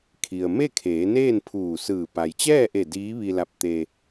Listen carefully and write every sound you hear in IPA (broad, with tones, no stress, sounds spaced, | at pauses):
kʰ i˩ ə̯ m e˥˨ kʰ eː˩˧ n eː˥˨ n pʰ uː˧˩ s ɯː˧˩ p a˩ j t͡ɕ ɛː˥˨ ʔ e˧˩ d iː˧˥ ʋ i˧ l a˧ p̚ t̪ e˧